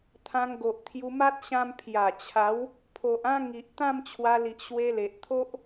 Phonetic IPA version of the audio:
t̪ʰã˧ŋɡo˨ʔt̪ʰju˧ma˦t̚ ɕã˧mpʰja˨˩t͡ɕʰa˨˦w | pʰo˨ʔã˦ ŋi˨ʔ t̪ã˥˧mt͡ɕʰwa˧li˨ʔ ɕwe˧le˨ʔt̪ʰo˦ʔ

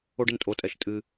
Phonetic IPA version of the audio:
o˧ɖɘ˩ntʼo˩tʼɛ˩ʃ tʼɨ˩

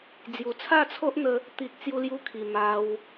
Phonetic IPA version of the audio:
d͡zju˨˩t͡sʰa˥˧t͡sʰo˦ʔn̪ə˧ | t̪i˨k̚ t͡sju˧lju˧kʰi˨˩ ma˧w

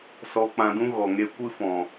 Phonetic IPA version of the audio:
sɔ˧k͡pã˧dũ˦ ɣɔ˨ŋe˧ kʷɨ˦fɔ̃˨

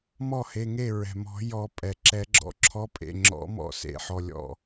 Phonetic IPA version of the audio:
mɔ˥˩he˩˧˩ŋe˥˩ ɹɛ̤˩mɔ̤˨˩˦jɔ˨˩˦ pʼɛ˩ǁɛ˨˩˦ɡ͡ǁɔ̰˩˧˩ ǁʰɔ˨˥pʼḛ˩˧˩ ŋ͡ǁɔ̰˨˥ mɔ̰˥˩sḛ˨˩˦ħɔ˩˧˩ lʲɔ̰˧˩

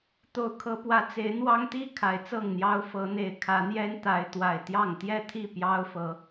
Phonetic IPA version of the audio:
t̪o˨˦ʊ̯kʰɤ˨˦pwä˨˦ t͡se˨˦ɪ̯n̪wɑ˦ŋt̪i˦ kʰa˨˩ɪ̯t͡sɤ˥˨ŋn̪jɑ˦ʊ̯ fɤ˨˦ n̪e˨˦ɪ̯ kʰä˨˦n̪jɛ˦n t̪a˨˦ɪ̯ t̪wa˨˩ɪ̯t̪jɑ˥˨ŋ t̪jɛ˥˨t̪ʰi˥˨ pjɑ˦ʊ̯fɤ˨˦

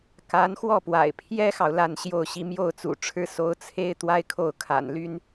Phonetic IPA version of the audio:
ka˧˥n xwɔ˥˩pwa̰˨˩ɪ̯ pʰjɛ˥xɑ˨ʊ̯ la˥˧nɕjo˥˧ʊ̯ɕi˥˧ mjo˥˩ʊ̯t͡sṵ˨˩ʈ͡ʂʰɻ̩˥ so˧˥ʊ̯t͡sʰe˥ɪ̯ t̪wa˥ɪ̯kʰo˥˩ʊ̯kʰa̰˨˩nly˥n

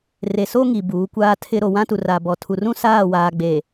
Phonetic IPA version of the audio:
re˨so˦ŋi˨ buː˨˦kʷaː˦tʰɪ˦ ɾo˨wã˦tu˨ ra˨bɔ˨ tʰu˨rũ˦ saː˦˨waː˨ɡ͡be˨

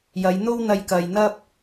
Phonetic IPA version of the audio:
jɐ˨˧jn̪o˥wn̪ɐ˧j kɐ˨jn̪ɐ˥p̚

